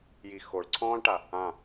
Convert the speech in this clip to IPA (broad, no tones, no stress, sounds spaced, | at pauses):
j i x o ɭ ǀʰ ɔ̃ː ɭ ʈ a | ã